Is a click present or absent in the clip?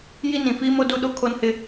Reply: absent